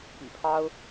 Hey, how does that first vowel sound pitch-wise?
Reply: low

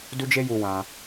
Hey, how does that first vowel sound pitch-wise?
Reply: high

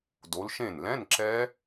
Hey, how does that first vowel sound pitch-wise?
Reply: rising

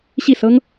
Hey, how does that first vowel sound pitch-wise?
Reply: falling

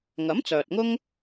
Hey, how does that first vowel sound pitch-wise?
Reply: rising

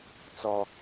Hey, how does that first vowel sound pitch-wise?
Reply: high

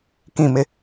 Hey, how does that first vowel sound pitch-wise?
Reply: falling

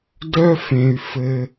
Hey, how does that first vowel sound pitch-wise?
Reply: high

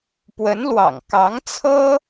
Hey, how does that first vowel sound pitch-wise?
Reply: rising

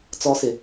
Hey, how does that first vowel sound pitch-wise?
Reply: low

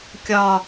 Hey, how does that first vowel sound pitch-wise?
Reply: low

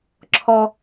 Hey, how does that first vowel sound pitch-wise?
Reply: low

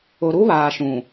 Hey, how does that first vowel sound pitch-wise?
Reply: low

